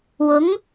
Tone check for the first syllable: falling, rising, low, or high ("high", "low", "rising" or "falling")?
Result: rising